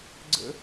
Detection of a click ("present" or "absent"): present